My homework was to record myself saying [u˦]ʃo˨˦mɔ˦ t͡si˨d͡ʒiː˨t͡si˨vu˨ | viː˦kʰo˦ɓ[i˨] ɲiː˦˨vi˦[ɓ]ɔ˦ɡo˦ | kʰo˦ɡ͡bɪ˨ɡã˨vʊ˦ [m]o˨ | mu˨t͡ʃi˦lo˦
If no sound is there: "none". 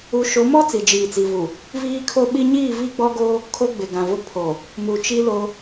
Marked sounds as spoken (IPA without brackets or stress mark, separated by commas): u˨˦, i˦, ɡ͡b, pʰ